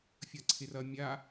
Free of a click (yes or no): no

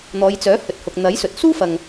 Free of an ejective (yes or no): yes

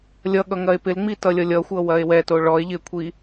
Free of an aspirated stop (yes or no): no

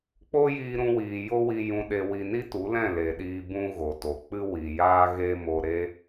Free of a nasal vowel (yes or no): no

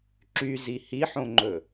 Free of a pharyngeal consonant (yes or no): no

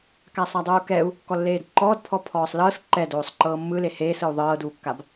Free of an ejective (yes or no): yes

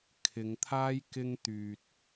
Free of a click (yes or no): yes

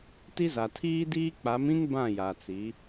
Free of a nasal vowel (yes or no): no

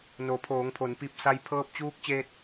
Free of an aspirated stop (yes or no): no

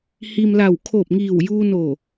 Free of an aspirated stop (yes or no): no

